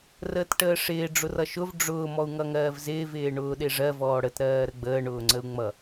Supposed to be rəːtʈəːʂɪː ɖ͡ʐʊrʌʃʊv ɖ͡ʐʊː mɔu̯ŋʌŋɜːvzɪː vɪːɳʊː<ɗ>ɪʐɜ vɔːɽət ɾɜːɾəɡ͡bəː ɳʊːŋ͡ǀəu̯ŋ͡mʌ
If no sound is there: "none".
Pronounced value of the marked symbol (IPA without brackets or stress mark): ɗ